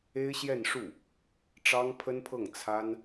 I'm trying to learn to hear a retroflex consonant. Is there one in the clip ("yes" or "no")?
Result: yes